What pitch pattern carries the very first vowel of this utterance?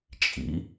rising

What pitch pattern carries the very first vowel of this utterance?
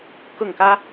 falling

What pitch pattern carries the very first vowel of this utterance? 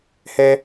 high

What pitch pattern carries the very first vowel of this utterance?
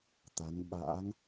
rising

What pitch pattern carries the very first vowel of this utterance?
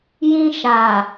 high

